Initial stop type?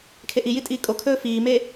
aspirated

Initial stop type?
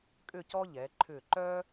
ejective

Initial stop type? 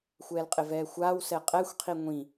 ejective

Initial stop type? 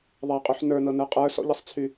ejective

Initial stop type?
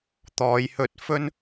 plain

